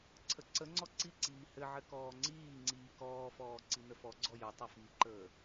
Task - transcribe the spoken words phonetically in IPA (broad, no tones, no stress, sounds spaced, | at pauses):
ǀʰ ə ǀ ə ŋ͡ǀ ɔ ǀ i ǀ iː h ɘ ʕ ɘ k ɔː ŋ͡ǀ iː ŋ͡ǀ iː k ɔː f ɔː ǀ i n ə f ɔ ɡ͡ǀ ɔ j ə tˤ ə f i ǃ əː